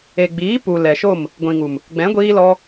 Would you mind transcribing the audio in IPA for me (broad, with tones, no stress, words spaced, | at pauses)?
e˨ɡ͡biː˨˦ pu˨ lɛ˨ʃo˦˨m | ɡʷĩ˨ŋu˨m | ɡ͡bɛ̃˨˦ɡʷiː˧lɔ˧